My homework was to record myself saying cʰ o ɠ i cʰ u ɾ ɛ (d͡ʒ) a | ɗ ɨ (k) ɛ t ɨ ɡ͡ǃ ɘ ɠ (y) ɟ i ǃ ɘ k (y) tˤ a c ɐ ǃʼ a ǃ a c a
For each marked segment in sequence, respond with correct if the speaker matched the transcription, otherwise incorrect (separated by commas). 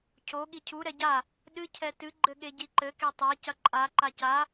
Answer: incorrect, incorrect, incorrect, incorrect